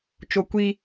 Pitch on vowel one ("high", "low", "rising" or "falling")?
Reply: high